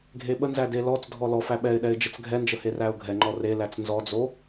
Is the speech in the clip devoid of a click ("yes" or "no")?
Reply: no